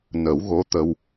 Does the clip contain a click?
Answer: no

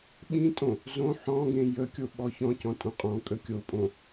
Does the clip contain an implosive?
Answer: yes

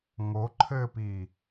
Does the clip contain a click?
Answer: yes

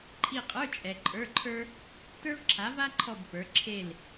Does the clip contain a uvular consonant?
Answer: yes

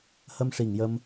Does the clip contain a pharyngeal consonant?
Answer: no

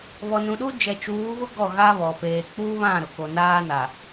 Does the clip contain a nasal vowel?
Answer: yes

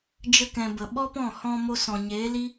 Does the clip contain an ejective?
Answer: no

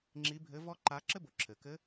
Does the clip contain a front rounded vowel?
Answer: no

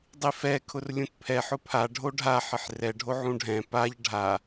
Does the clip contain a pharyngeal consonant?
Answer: yes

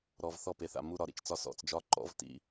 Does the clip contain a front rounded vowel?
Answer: no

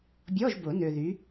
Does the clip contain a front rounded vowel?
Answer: yes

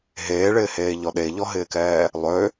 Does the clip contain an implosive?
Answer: yes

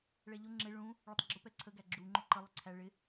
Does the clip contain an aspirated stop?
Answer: yes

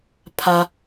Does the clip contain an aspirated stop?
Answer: yes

